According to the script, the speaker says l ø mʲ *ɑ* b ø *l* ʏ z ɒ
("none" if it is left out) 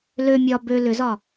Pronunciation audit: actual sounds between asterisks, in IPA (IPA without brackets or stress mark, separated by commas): ɒ, l